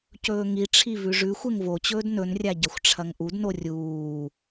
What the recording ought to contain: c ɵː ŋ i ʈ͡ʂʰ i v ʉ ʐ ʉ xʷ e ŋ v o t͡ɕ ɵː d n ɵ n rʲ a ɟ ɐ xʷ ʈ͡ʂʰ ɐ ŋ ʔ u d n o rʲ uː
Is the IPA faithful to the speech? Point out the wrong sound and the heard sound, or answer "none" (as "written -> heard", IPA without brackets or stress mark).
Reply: none